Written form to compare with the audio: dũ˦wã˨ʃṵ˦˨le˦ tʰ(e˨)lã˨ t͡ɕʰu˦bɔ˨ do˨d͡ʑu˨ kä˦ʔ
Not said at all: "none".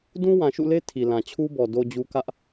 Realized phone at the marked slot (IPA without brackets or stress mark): i˨